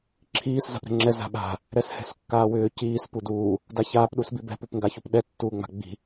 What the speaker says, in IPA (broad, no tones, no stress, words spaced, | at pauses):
ǁʰiːs za̤pɾɛ̤ŋ͡ǁɛ za̤ɓa̤ | ɾɛshɛ̤skːaːwʏː ciːs puduː | daçaːp ɗusbibɛ̤ pupŋɡaçupɗɛ tːuːŋ͡ma̤ɡ͡bi̤